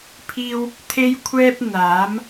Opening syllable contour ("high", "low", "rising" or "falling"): high